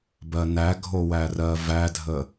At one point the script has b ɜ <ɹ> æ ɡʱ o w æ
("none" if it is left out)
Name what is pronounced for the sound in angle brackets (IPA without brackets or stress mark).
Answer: n